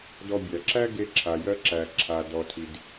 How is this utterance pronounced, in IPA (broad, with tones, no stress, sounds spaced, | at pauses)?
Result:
d ɔ˧ bʲ æ˨ ǁ æ˦ ɡ e˧ ǁʰ a˨ j ɜ˧ ǁ æ˨ ǁʰ a˨ d ɔ˨ tʰ i˨ d